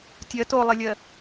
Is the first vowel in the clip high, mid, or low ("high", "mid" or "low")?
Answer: mid